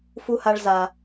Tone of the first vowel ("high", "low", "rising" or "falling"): high